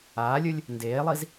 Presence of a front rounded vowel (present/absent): absent